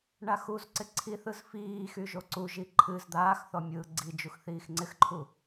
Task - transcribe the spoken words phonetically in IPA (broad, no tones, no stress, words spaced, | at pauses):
ɳaxuzǀɪ ǀʰiθɯz fiː xyʒoǀuʒi ǃʰɨz d̪aːxθɔ mʲɯːɡ͡ǀid͡ʒux θiːxŋ͡ǀɪxǃʰu